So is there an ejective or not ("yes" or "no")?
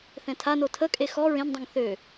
yes